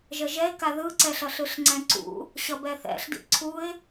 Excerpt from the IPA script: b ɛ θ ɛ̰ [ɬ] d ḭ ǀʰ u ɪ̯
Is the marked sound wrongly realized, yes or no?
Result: no